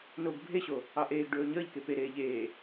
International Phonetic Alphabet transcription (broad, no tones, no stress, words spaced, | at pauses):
noɡ bʱeɕo | ɑʔeːɡɖɵː ɲəːʎke peɾeː ʎeː